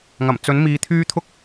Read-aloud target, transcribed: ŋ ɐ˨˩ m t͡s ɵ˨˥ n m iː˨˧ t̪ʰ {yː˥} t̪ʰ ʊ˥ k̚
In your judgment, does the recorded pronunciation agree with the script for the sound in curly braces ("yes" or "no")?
yes